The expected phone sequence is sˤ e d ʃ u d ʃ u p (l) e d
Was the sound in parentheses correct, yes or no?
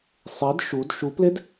yes